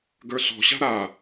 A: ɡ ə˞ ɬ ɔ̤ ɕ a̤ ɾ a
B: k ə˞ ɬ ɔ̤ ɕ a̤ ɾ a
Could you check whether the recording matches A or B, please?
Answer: A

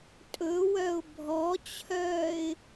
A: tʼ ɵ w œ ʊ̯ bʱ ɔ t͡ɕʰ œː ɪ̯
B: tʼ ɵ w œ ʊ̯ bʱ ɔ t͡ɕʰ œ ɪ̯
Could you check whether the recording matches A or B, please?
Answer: A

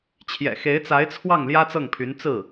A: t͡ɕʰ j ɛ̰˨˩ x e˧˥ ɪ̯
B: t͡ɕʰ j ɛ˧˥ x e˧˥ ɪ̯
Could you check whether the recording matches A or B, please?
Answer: A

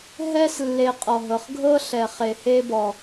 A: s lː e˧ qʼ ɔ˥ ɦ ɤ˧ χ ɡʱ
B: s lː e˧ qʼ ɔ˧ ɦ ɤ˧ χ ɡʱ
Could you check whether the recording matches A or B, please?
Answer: B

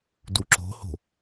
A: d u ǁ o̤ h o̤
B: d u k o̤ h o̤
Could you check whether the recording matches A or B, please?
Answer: A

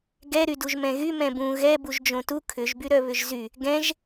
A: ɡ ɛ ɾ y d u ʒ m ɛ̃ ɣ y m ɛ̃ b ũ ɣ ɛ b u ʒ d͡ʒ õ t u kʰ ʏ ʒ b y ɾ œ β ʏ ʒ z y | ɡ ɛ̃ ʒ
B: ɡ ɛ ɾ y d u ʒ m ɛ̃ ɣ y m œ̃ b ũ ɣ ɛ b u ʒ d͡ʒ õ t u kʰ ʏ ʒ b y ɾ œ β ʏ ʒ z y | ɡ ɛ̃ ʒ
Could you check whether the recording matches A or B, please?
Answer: A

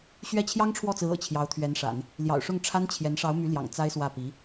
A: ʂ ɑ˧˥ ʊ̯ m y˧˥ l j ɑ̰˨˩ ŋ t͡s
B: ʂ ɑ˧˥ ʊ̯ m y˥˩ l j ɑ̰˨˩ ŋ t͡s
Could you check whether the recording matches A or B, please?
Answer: A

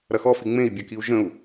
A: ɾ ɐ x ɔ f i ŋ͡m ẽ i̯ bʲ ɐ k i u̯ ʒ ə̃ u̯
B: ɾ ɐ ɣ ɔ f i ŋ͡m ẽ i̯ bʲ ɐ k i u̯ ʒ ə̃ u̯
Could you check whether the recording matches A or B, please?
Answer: A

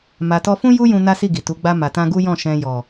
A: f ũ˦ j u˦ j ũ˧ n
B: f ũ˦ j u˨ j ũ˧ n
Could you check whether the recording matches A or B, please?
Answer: A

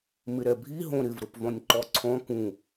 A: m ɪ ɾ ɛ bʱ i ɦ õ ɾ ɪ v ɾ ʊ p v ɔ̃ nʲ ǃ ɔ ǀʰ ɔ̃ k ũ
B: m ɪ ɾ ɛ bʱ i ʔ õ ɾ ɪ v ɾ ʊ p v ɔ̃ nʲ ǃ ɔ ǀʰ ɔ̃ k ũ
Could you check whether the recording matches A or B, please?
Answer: A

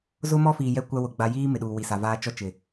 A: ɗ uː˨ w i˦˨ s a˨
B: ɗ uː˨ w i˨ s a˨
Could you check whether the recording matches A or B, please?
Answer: B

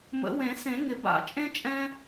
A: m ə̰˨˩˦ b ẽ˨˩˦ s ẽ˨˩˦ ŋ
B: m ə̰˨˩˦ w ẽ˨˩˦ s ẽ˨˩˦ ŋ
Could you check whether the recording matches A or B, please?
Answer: B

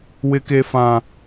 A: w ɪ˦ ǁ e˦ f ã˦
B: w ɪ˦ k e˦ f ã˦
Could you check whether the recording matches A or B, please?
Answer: B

